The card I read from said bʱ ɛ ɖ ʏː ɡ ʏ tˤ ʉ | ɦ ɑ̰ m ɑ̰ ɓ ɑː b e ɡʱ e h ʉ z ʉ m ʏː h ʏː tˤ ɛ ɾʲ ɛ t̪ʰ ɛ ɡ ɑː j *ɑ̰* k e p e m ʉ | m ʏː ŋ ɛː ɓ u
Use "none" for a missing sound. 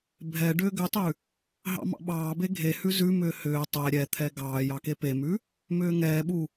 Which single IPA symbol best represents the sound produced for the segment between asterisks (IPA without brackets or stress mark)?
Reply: ɑ